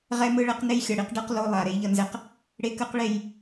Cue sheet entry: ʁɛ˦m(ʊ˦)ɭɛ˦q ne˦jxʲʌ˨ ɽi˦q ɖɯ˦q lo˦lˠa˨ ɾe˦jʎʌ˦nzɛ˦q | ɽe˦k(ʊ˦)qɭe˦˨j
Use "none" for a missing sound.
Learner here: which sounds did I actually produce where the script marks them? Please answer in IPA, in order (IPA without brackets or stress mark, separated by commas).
ɯ˦, ɯ˦